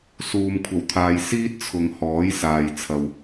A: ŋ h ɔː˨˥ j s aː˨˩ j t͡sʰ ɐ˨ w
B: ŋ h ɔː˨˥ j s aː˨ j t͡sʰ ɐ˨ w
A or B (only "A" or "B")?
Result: B